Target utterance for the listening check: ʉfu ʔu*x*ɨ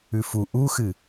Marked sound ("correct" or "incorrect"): correct